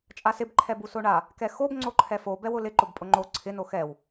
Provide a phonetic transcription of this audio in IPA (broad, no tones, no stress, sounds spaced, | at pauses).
t͡ʃʼ a s ɪ b ǃʰ ɛ b u s o ɳ a | k ɛ x o b ŋ͡ǀ o ǃʰ ɛ f o b ɛ w ʊ l ɪ ǃ ʊ b pʼ ʊ ŋ͡ǃ o ǀʰ ɪ n o x ɛ w